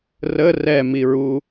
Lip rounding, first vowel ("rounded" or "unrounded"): unrounded